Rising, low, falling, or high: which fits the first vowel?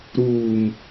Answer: low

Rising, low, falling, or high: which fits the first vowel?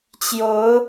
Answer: rising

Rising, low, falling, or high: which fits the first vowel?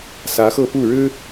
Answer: rising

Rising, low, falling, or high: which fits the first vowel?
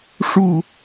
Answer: falling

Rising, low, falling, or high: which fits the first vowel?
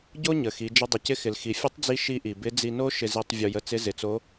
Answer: high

